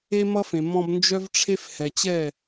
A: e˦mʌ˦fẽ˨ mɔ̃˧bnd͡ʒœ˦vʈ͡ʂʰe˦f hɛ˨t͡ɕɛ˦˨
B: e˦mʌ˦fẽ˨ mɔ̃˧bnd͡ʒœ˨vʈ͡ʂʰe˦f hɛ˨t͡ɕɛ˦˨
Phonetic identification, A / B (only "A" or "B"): A